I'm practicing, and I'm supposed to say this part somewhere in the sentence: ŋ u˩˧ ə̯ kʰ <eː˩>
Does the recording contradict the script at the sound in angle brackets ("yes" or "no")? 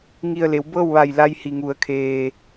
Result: no